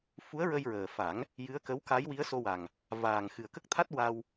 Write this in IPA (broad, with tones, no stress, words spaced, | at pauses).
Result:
fu˧˥ə̯ɹə˧jɹəː˨˩fa˨˩˦ŋ | jɨ˧˥ə̯kə˧˥wka˧˥j wi˧˥ə̯so˧wa˨˩ŋ | vaː˨˩ŋ xɨ˨˩ə̯kə˦˥k̚t̪ʰa˦˥t̚ wa˧w